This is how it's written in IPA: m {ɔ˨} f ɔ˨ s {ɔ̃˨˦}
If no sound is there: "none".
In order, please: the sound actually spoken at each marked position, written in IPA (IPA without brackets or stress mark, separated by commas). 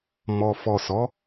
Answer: ɔ˨, ɔ˨˦